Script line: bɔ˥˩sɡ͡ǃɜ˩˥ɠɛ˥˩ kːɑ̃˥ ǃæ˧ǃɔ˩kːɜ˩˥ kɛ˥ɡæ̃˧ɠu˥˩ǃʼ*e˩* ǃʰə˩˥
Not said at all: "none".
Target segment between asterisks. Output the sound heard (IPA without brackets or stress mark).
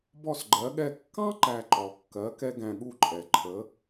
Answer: ɛ˩